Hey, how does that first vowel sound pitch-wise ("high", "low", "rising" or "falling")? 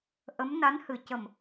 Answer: rising